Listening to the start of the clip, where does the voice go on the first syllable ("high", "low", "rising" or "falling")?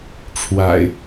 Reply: low